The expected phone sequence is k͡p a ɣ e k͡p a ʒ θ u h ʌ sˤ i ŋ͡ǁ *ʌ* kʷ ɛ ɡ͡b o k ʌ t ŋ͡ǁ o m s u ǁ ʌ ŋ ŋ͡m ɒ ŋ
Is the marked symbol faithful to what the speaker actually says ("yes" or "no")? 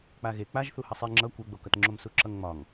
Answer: yes